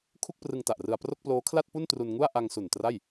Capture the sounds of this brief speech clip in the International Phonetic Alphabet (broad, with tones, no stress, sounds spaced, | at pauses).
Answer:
kʰ u˥˩ k̚ p r ɯ˧ ŋ t a˨˩ ʔ r ɯ˧ a̯ p r o˥˩ k̚ p l oː˦˥ kʰ l a˥˩ t̚ p u˥˩ n t r u˧ n ŋ u˥˩ a̯ ʔ a˧ ŋ s u˨˩ n t r a˥˩ j